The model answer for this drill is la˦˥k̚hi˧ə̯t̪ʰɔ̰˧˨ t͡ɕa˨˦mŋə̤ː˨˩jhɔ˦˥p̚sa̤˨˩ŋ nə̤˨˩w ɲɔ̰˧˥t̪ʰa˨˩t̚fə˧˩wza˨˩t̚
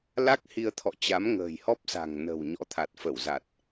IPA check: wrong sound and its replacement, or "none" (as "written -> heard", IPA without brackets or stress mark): none